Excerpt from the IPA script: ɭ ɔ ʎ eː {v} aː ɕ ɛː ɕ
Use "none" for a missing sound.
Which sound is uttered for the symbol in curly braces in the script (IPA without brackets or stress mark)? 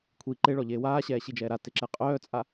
w